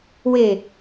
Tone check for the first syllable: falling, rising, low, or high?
falling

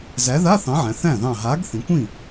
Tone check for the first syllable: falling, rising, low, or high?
rising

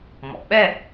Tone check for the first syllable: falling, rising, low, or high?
low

